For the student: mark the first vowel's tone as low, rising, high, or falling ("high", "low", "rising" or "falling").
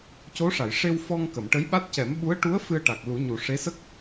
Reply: rising